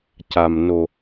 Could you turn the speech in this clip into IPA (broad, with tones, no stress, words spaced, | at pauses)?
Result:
ca˨˩mno˨˩